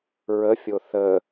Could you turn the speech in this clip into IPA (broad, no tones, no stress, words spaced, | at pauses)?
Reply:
ɹəfʲo θə